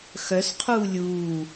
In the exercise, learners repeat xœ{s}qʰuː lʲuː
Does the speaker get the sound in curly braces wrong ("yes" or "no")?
no